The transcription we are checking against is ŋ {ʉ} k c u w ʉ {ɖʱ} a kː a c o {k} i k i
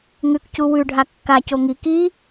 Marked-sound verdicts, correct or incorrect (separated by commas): correct, correct, incorrect